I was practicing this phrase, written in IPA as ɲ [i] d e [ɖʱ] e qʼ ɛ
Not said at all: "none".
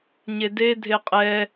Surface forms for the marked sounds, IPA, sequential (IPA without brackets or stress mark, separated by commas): e, dʱ